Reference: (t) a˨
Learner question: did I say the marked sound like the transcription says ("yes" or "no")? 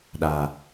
no